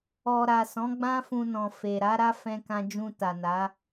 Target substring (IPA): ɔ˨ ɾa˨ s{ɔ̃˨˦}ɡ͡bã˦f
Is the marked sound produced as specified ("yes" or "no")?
yes